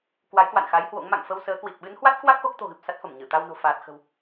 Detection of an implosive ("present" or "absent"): present